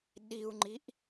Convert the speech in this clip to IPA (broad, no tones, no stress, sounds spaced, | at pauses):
ɗ i u̯ ŋ͡ǃ i ʔ